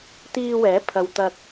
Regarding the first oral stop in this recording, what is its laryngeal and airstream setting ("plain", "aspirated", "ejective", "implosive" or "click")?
plain